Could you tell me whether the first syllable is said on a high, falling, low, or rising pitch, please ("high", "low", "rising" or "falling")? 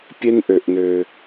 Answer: high